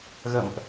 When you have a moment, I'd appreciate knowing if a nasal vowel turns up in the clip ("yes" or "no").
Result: no